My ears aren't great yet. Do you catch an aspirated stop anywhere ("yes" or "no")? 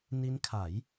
yes